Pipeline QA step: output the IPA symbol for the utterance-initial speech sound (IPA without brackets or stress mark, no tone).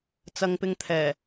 t͡s